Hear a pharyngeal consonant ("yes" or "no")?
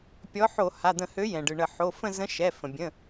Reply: yes